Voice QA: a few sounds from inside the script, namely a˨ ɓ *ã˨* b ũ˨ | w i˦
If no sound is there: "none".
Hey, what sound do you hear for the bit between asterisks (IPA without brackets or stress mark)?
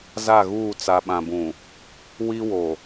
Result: ã˨